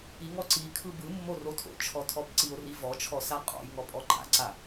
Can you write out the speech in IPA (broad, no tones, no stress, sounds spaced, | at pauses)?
i ŋ ɔ ǀ i kʰ ɯ b ɯ mː o r o tʰ o̰ t͡ʃʰ ɔ tʰ ɔ b ǀ i o̯ r i v ɔ t͡ʃʰ ɔ s a qʼ ɔ̰ j ŋ ɔ pʼ ɔ ǃ a̰ ǀ a